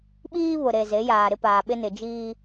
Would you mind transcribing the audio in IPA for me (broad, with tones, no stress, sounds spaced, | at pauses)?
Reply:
ɓ iː˦ β ʊ˨ ɾ e˨ z e˨˦ j aː˨ ɾ ɪ˦ p aː˨ ɓ ɪ˦ n ɪ˨ d͡ʒ iː˦